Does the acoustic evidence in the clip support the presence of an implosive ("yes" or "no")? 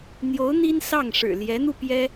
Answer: no